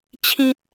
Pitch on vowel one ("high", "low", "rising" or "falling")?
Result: high